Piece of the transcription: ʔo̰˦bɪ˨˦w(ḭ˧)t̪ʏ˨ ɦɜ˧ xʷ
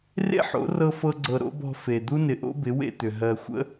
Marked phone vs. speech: incorrect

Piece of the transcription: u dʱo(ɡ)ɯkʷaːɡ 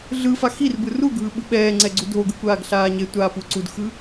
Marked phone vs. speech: correct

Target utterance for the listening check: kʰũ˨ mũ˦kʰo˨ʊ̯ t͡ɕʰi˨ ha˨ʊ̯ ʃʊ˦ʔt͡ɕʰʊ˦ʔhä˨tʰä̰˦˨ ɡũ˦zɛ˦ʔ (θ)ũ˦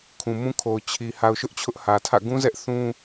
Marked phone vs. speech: correct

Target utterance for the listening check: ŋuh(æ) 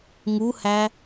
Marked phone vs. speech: correct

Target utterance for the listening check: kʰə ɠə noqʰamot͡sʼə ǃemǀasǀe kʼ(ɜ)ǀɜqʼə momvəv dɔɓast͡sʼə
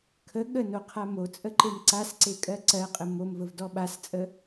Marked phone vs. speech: correct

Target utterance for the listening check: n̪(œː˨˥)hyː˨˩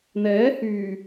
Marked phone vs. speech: incorrect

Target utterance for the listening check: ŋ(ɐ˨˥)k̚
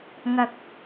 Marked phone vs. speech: incorrect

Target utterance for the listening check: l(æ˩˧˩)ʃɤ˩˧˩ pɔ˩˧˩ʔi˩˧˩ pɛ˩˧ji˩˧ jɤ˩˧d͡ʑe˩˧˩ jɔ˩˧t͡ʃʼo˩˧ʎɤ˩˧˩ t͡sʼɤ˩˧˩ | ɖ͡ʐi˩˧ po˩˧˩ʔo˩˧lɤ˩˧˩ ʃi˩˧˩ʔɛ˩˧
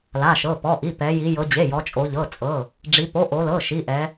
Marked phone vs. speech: incorrect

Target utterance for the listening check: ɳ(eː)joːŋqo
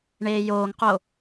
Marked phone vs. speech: correct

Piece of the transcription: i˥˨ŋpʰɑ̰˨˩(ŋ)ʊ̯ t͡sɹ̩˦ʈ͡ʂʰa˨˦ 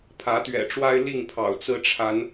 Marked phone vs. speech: incorrect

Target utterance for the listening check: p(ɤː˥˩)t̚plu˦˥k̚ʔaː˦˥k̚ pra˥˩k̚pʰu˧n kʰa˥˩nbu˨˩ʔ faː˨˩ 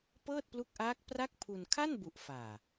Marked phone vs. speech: correct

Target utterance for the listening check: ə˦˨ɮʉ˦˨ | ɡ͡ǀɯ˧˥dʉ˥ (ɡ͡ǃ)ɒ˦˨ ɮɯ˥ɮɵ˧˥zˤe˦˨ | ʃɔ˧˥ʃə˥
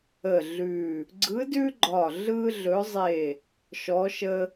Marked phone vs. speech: correct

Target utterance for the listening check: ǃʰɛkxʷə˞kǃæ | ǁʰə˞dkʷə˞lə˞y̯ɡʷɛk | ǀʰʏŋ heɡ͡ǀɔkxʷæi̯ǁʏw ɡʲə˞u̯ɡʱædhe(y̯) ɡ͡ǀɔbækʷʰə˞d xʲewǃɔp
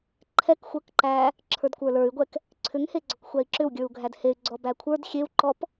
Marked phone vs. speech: correct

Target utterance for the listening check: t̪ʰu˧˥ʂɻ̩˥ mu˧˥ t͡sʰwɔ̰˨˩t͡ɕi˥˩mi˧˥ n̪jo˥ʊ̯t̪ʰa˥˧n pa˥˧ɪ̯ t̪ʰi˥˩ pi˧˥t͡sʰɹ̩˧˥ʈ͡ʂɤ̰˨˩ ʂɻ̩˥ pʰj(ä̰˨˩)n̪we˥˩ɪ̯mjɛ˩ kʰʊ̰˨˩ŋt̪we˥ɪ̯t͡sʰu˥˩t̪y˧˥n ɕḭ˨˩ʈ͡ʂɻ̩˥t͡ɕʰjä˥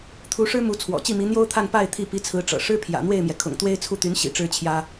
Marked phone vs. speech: correct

